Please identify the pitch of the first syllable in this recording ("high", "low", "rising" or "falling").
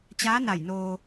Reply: rising